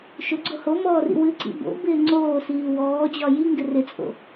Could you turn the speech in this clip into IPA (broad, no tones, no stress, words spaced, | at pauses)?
ʃʊɡ͡ǀo homɔːrḭ wɨǀḭ bo̰bɪː ŋ͡ǀoːsiː wɔːd͡ʑɒ jiŋɡɪ rɪt͡sʼo̰